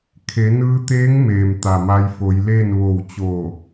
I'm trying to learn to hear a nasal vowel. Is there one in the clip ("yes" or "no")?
no